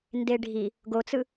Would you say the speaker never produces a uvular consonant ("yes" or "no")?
yes